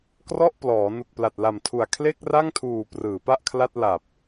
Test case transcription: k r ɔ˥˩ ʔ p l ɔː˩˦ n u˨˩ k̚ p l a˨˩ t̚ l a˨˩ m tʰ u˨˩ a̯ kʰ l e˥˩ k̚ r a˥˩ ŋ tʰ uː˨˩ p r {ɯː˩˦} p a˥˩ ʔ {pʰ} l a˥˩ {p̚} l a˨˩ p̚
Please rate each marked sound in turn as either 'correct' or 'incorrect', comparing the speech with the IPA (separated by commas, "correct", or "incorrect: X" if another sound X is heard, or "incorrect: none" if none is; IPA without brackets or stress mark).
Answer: correct, incorrect: kʰ, incorrect: t̚